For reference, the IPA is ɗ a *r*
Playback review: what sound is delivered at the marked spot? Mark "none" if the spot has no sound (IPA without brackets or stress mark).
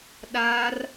r